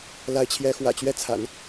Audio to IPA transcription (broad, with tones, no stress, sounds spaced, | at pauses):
l a˧˥ ɪ̯ t͡ɕʰ j ɛ˧˥ x w ä̰˨˩ t͡ɕ ɥ ɛ˥˩ t͡sʰ a̰˨˩˦ n